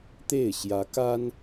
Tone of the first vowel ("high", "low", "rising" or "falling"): falling